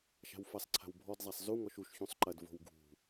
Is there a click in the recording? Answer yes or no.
yes